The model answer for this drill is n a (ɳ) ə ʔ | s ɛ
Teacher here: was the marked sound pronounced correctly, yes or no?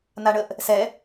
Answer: yes